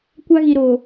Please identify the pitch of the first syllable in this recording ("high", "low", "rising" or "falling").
high